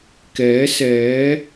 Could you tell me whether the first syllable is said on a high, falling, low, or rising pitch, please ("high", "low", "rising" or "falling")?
rising